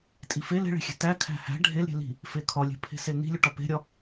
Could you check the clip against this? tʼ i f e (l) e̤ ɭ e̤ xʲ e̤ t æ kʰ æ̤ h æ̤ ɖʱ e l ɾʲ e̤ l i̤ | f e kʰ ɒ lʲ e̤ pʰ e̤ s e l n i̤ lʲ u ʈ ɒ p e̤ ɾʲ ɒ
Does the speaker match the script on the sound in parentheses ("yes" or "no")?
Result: yes